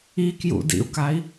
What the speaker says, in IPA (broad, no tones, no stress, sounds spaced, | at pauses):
i k j ṵ d ḭ u̯ k a i̯